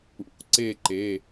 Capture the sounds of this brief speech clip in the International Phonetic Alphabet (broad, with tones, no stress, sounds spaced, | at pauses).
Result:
ṵ˩˧˩ ǀ e˦˨ ǃ e˩˧˩